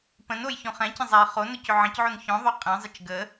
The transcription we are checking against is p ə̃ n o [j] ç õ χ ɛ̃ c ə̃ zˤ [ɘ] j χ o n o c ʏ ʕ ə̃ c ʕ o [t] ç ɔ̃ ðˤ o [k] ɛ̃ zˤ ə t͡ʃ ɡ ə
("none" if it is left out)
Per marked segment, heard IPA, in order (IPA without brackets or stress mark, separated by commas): j, ɛ, n, qʼ